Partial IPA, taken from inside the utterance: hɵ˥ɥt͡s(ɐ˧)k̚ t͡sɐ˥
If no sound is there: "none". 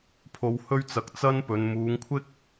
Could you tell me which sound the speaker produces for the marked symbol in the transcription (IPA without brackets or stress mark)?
ɐ˨